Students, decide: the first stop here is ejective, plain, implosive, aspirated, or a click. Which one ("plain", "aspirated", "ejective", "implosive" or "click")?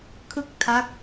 aspirated